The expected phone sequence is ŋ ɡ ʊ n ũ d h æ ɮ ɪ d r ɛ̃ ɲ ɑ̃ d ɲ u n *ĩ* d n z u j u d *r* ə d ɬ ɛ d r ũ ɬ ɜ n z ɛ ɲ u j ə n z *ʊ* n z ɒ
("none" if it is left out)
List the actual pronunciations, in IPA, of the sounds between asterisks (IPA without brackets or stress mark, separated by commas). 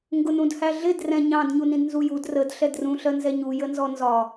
ĩ, r, ɔ